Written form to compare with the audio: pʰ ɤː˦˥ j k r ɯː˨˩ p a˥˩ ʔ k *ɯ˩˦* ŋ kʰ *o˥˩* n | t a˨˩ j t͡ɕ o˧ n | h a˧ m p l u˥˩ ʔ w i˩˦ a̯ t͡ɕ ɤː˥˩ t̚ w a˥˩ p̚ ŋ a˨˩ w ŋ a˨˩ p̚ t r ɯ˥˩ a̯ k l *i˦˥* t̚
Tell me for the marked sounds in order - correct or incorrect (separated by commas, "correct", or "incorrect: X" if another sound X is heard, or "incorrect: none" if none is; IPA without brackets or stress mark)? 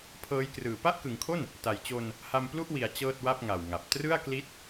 correct, correct, correct